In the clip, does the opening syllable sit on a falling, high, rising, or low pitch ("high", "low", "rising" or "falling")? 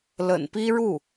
low